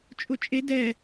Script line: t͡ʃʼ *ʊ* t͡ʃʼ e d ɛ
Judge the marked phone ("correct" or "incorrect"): correct